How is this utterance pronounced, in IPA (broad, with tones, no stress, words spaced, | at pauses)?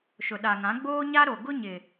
ʃʊ˨ɗa˨ŋã˨˦ ɡ͡boː˦ɲa˦ɾo˨ ɡʊ˦ ɲɪ˨